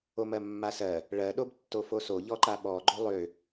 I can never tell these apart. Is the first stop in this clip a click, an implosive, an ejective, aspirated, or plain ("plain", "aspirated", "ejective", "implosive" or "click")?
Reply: implosive